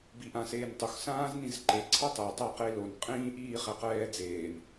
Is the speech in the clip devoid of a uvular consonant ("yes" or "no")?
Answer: no